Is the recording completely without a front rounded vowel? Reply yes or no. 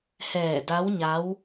yes